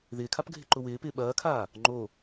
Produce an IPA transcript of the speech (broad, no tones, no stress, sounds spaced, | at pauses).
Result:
ð ɪː kʰ a p ɡʱ ɪ ǃ ʊ w ɪː p ɪː ɓ ɐː kʰ aː | ŋ͡ǃ o